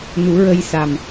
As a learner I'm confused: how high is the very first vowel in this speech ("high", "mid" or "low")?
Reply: high